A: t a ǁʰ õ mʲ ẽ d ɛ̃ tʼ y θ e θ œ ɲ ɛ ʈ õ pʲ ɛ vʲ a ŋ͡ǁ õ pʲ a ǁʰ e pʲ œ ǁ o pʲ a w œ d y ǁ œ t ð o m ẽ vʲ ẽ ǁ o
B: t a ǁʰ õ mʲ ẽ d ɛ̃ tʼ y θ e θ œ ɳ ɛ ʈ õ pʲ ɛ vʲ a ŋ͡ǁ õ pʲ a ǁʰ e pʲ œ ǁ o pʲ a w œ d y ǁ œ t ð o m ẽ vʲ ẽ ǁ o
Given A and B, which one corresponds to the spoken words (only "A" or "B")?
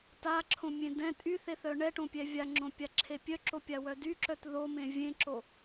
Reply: B